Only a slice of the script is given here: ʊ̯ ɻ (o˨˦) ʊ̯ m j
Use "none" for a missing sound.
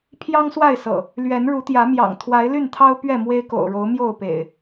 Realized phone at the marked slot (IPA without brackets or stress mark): o˨˦